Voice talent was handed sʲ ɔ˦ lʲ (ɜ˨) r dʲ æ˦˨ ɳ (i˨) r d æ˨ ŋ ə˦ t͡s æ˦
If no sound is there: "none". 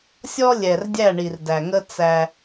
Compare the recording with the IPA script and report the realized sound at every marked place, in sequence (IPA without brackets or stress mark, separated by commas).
ɛ˨, i˨